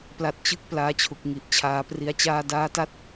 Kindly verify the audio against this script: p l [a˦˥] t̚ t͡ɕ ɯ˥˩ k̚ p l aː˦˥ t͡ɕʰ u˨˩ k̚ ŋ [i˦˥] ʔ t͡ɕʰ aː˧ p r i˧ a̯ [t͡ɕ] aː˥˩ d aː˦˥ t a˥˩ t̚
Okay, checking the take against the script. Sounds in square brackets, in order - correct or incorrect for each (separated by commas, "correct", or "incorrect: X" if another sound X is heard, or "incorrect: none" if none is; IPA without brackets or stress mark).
correct, incorrect: i˨˩, correct